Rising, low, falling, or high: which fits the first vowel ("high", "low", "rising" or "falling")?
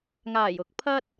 low